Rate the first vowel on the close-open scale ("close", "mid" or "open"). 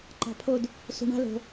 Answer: open